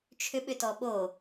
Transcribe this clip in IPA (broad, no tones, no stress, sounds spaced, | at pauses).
t͡ʃʰ ʏ ɓ ʏ t ɔ ɓ o